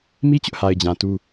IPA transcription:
m i˦ t͡ɕ ʊ˦ ʔ h a˨ ɪ̯ d͡ʑ ã˨ t u˦

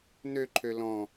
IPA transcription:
n ø ǃʰ ø l ɔ̃

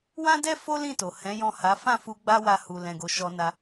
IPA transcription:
w ã˦ d ɛ˦ f o˦ l ĩ˦˨ t o˨ h ɛ̃˨˦ j ɔ̃˦˨ h a˨˦ f ã˦˨ f u˧ ɡ͡b a˦ w a˧ h u˨ l ɛ̃˨ ɡ o˨ ʃ ɔ˧ n a˧

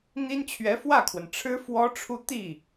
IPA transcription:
n̪ i˥ n t͡ɕʰ ɥ ɛ˧˥ f w ä˥˩ kʰ w ə˩ n ʈ͡ʂʰ ɻ̩˥ f w ɔ˥ ʈ͡ʂʰ u˥˧ t̪ i˥˩

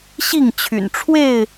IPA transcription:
ɕ i˥˨ ŋ t͡ɕʰ y̰˨˩ n ʈ͡ʂʰ w e˥˨ ɪ̯

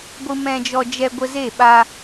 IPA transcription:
ɡʷ ɨ˧ m ɛ̃˧ d͡ʒ ɔ˧ d͡ʒ ɛ˧ ɡʷ ə˧ z e˦˨ ɓ a˧

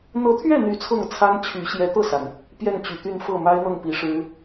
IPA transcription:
n̪ ɤ˧˥ t̪ʰ ɥ ɛ˥˩ n̪ y˨˩ t͡sʰ ɤ˥˩ ŋ t͡sʰ a˥ n t͡ɕʰ y˧˥ ɕ j ɛ˧˥ t̪ ɤ˥˩ s a˩ n | p j ɛ˥˩ n t͡ɕ y˨˩ t̪ y˥˧ n f ɤ˥˩ m a˥ ɪ̯ n̪ ɤ˥˩ ŋ p i˨˩ ʂ ɻ̩˥

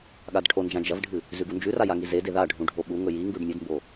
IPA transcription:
ɠ a d ʈʰ o n d͡ʒ ã d͡ʒ ɐ v ɖʱ ɨ | z ʉ ɡ u n d͡ʒ ʉ r a j a ŋ i z e d e ð a ɖʱ ũ ɖʱ o ɓ u ŋ ɵ j i ŋ ɡ ʉ ɖ mʲ ɨ d m b o

